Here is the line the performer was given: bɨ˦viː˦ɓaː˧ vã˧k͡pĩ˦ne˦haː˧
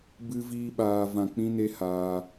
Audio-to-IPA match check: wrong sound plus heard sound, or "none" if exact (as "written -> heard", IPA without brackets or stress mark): none